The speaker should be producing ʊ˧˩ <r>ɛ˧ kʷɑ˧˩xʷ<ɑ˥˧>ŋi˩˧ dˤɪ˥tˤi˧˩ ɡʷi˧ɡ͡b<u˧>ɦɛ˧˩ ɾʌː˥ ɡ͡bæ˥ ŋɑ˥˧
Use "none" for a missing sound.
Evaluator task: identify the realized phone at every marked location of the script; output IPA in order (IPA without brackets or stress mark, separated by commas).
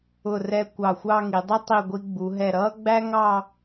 r, ɑ˥˧, u˩˧